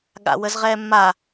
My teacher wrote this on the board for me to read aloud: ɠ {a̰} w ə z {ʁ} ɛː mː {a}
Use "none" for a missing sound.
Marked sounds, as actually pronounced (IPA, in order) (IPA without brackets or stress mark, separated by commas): a̰, ʁ, a